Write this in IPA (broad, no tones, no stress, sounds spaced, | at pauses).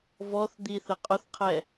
v ɔ θ d̪ i θ ə qʼ ʊ θ qʰ ɛ